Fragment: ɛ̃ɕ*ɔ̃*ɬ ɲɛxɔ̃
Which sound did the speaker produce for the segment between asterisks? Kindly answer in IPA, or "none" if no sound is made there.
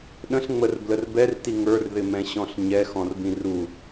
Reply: ɔ̃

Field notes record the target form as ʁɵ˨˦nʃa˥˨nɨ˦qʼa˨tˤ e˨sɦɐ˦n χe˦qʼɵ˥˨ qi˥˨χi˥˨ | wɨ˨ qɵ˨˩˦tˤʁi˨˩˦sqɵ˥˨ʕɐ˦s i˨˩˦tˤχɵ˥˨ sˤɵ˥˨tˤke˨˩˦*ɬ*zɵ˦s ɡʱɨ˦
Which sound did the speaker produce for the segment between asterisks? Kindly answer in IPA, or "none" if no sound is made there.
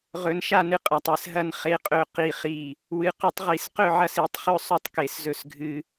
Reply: s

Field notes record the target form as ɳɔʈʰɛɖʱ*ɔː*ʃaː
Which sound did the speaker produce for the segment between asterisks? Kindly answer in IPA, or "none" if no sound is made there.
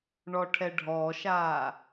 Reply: ɔː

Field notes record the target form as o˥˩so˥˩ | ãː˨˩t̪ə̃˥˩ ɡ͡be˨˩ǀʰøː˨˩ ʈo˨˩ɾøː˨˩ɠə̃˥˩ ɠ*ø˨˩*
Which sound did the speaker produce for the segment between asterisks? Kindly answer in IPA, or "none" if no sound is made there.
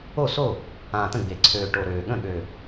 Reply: ø˨˩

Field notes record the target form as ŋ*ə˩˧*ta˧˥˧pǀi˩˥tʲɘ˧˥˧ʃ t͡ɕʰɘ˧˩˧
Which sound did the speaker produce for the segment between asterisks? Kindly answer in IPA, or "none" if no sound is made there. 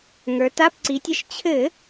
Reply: ə˞˩˧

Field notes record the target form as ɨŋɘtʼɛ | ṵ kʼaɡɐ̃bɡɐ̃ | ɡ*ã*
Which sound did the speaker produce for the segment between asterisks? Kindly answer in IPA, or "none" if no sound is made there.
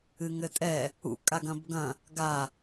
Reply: a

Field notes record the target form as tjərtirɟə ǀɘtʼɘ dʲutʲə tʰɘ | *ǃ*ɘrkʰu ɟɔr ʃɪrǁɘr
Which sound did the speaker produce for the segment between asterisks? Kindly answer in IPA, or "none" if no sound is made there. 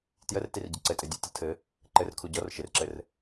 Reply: ǃ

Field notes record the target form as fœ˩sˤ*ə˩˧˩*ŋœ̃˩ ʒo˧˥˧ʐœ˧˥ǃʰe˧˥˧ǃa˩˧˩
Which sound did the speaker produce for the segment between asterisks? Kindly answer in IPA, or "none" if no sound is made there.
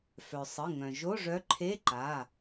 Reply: ə˩˧˩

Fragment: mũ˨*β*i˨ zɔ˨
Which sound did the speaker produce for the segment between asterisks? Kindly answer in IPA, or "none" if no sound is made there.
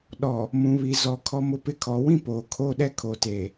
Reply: β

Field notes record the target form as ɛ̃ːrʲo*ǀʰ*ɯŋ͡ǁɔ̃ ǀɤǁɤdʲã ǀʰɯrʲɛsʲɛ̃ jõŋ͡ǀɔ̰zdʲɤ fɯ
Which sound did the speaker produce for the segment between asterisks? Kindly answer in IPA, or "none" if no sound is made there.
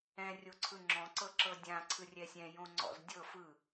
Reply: ǀʰ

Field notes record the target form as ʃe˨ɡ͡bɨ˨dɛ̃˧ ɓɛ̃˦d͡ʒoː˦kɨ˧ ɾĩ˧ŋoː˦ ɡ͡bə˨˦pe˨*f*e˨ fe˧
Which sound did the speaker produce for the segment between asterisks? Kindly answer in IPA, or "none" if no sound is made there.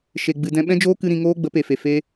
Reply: f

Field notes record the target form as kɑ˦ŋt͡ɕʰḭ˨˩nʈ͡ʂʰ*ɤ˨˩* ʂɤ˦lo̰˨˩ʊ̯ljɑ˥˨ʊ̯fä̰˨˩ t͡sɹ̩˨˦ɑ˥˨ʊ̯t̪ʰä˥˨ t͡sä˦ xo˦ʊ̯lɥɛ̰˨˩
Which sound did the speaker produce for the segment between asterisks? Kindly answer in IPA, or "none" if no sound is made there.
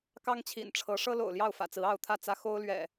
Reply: ɤ˨˦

